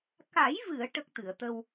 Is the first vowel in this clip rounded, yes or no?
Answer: no